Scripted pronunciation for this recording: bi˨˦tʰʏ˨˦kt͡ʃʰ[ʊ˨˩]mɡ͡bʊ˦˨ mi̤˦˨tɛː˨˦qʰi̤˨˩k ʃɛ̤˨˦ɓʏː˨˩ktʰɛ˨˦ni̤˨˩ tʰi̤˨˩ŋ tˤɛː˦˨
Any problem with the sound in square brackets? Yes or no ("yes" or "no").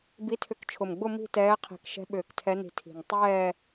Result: no